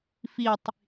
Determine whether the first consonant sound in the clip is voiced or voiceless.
voiceless